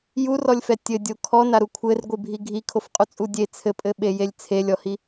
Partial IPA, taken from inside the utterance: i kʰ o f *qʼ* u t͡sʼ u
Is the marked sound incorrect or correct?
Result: correct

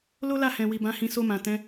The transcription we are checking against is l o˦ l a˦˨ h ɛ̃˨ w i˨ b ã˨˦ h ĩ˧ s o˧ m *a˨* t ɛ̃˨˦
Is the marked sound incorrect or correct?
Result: incorrect: ã˨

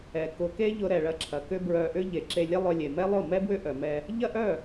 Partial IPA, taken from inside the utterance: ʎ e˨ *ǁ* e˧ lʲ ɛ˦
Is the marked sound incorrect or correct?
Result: correct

